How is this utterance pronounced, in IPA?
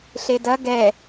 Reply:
ɬ e d ɐ ɡ ɛ

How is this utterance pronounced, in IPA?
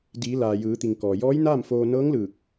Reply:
d iː˩˧ l aː˩ j ɯː˩˧ t̪ i˩ ŋ k ɔː˩ j ɔː˧˥ j n aː˥˨ m f oː˧ n ɤː˧˥ ŋ l ɯː˧˩ k̚

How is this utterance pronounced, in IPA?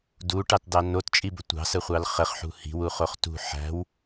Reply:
d u ʈ ɑ t d ɑ n o t t͡ʃʼ i b ə tʷ ɑ̤ s ə χʷ ɑ l χ ə χ ħ ṳ h i̤ w u χ o χ t ṳ ħ æ̤ w

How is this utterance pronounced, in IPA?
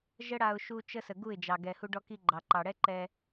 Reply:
ʒ ə˦ ɽ a˧ ʊ̯ ʃ u˦ t͡ʃ ə˦ s ə˨ ɡ u˦˨ ɪ̯ d͡ʒ ɑ˨ ɡ ɛ˨ h u˧ ɖ ɔ˧ k i˧ ɡ͡ǃ ɑ˨ ǃ ɑ˨ ɽ ɛ˦ ǃ ɛ˧

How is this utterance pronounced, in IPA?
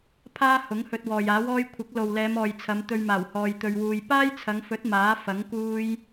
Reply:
pʰ aː˥ h ʊ˨˥ ŋ h ɵ˧ t̚ w ɔː˨ j aː˨˥ w ɔː˥ j kʷʰ ɪ˨˥ k̚ l o˨ w l ɛː˨˧ m ɔː˨ j t͡sʰ ɐ˨˧ m t̪ ɵ˧ ɥ m aː˨˩ w h ɔː˧ j t̪ ɵ˧ ɥ w uː˧ j p aː˥ j t͡sʰ ɐ˨˧ ŋ f ɵ˨˥ t̚ m aː˨˥ f ɐ˨˥ ŋ k uː˥ j

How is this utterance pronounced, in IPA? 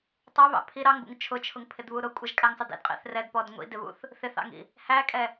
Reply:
tˤ ɛ β ɑ̰ pʰ i ɾ ɑ ŋ b ṵ ŋ t͡ʃʰ ʊ t͡ʃʰ ʊ ŋ pʰ ɪ d β u ɾ ʊ kʷʼ ʌ ʒ kʼ æ ŋ sˤ ɪ d ḭ d qʼ ḭ θ r ɛ d p ɔ d ŋʷ ḭ d ɪ β ṵ θ | θ ɪ θ ɑ̰ ŋ ḭ | h æ kʼ ɛ

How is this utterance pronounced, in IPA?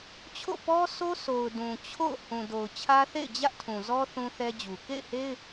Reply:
t͡ɕʰ o̰˦˨ p ɔ˦ s o˦ sʰ o˨ ʊ̯ d ũ˨ t͡ɕʰ o̰˦˨ ʊ̯ h ũ˨ d o˨ ʊ̯ t͡ɕʰ ä˦ θ ḛ˦˨ ɪ̯ d͡ʑ ä˦ ʔ tʰ ũ˨ z ɔ˦ θ ũ˦ θ ɛ˦ d͡ʑ u˨ k ḛ˦˨ ɪ̯ h e˦ ɪ̯

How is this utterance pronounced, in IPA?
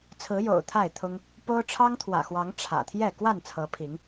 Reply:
t͡sʰ ɹ̩˨˦ j o̰˨˩ ʊ̯ t̪ʰ a˥˨ ɪ̯ t̪ʰ ʊ˦ ŋ | p o˦ ʊ̯ ʈ͡ʂʰ ɑ˦ ŋ t̪ʰ w ä̰˨˩ x w ɑ˨˦ ŋ ʈ͡ʂʰ ä̰˨˩ t̪ʰ j ɛ˥˨ k w a˥˨ n t͡sʰ ɤ˨˦ pʰ i˨˦ ŋ

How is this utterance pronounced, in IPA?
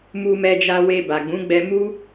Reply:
m u˧ m ɛ˧ d͡ʒ a˧ w e˧ b a˨ ɡ͡b ũ˨˦ ɡ͡b ɛ˧ m u˦

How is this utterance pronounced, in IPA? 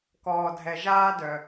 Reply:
k ɔː˨ dʱ ɛ˨ ʒ aː˦ d œ˨

